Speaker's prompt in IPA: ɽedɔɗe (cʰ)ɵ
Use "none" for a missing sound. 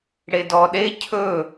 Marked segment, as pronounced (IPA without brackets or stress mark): cʰ